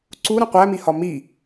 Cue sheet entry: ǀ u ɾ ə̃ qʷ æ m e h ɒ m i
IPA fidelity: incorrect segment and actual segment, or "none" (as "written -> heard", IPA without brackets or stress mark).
e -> i